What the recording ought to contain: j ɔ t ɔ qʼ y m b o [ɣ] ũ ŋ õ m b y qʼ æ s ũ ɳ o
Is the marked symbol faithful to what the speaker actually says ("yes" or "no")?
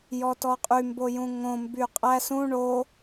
no